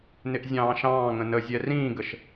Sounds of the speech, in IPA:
n ɪ ʔ zʲ ɑ̃ː ʃ ɑ̃ː ŋ ə̃ n ə zʲ ɛ r ĩː ɡ ə ʃ

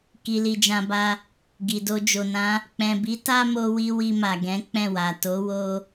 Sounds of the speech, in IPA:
k i˨ l i˨ d͡ʒ ã˨ b a˧ | ɡ i˨ d o˧ d͡ʒ o˨ n ã˨˦ | k͡p ɛ̃˨ b i˨˦ t a˦ m o˧ w i˧ w i˧ m a˨ ɡ ɛ̃˨˦ k͡p ɛ̃˦˨ w a˨ t o˨˦ w o˧

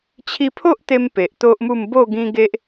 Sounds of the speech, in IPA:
t͡ɕʰ i˧ pʰ o˦ ʔ t̪ e˧ m p e˨ ʔ t̪ o˦ ʔ m u˥˧ m b o˥˧ ɡ ĩ˦ ɡ e˦ ʔ

